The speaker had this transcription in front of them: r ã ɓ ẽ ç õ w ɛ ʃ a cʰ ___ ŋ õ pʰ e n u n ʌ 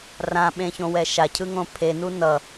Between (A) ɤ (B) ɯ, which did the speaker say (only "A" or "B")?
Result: B